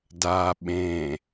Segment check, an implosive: present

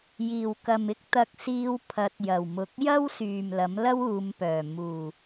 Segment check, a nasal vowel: absent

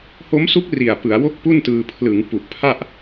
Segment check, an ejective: absent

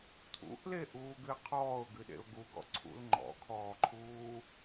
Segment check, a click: present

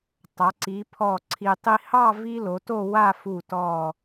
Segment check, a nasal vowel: absent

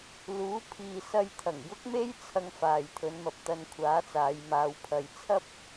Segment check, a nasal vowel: absent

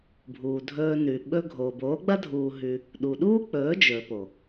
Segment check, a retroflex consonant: absent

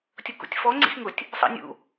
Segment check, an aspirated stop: absent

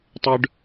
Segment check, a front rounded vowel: present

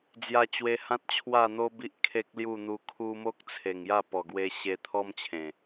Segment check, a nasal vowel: present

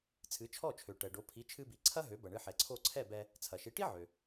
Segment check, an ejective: absent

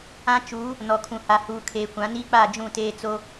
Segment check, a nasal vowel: present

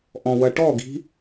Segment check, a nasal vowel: present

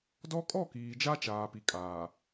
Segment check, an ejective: present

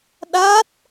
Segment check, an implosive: present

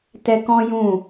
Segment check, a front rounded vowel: absent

